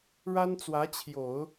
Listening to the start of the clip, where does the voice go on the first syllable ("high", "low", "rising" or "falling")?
high